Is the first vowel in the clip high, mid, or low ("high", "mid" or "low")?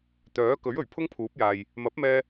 mid